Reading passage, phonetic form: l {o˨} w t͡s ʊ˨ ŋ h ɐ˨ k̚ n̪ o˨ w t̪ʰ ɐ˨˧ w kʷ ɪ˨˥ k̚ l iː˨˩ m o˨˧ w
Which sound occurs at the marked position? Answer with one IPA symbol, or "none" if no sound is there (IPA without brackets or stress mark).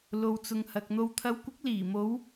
o˨